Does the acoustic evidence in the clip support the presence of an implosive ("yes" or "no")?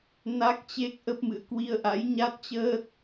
no